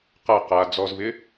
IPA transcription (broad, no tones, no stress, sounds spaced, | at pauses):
q a q a d͡z ɔ z v ɪ